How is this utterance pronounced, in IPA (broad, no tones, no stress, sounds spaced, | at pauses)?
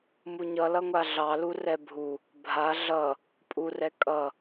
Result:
m u ɲ ʌ l ʌ ŋʷ a ɮ ɑ l u r ɛ bʱ u | bʱ a ɮ ʌ | pʼ u r ɛ kʼ ʌ